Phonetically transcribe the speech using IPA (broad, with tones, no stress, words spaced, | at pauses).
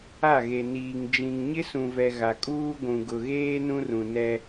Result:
a˦˨ɣe˨niː˨ŋ d͡ʒĩ˨ŋɲɪ˦sũ˨vɛ˨ ɣa˨kʼuː˦ ɡʷũ˨ɡʊ˨ɣeː˦ nũ˦rũ˨ nɛ˦